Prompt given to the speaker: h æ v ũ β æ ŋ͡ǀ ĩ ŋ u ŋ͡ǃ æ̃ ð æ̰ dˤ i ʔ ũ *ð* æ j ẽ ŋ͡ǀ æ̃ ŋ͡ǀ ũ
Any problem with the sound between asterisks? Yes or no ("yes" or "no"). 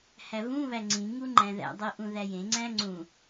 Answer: no